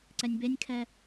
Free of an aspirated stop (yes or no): no